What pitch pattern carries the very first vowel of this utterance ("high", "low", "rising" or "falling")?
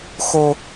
high